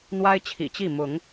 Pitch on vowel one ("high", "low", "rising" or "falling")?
high